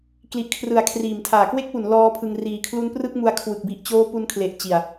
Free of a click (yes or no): yes